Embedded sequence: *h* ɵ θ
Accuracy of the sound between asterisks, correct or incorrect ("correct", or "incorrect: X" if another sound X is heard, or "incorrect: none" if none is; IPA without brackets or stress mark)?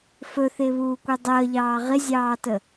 incorrect: f